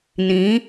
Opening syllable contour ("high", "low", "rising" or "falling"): rising